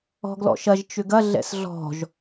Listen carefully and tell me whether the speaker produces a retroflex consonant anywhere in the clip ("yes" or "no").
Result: no